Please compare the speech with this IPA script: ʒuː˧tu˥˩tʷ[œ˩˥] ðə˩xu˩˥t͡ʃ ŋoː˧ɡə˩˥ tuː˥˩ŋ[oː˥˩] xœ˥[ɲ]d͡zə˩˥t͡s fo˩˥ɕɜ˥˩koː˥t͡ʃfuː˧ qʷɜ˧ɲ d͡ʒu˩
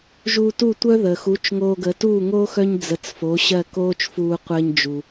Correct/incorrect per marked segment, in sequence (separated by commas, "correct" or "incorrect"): incorrect, incorrect, correct